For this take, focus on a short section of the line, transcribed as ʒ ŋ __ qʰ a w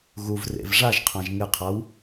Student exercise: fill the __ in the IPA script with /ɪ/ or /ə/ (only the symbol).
ɪ